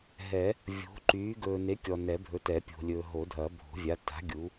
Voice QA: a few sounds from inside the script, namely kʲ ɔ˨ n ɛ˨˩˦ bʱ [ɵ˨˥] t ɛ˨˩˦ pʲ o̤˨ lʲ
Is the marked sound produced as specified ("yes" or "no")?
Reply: yes